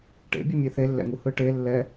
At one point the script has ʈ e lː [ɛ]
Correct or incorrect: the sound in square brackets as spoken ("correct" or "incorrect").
correct